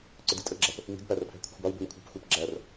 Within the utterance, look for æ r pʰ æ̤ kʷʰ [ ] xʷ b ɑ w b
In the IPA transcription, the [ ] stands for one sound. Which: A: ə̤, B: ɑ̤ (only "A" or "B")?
A